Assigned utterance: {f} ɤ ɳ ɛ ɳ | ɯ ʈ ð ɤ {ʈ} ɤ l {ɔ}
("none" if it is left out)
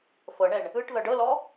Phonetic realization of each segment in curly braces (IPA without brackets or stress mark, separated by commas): f, ɖ, ɔ